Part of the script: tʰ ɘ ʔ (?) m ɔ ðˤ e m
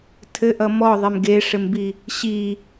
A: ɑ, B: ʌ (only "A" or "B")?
B